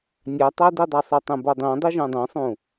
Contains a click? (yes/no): no